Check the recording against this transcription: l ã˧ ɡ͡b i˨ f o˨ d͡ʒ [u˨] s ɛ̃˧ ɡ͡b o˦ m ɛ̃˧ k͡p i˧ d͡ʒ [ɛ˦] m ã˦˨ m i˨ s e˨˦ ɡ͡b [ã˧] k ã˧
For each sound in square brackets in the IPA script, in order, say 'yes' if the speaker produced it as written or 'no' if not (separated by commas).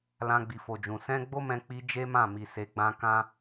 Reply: no, no, yes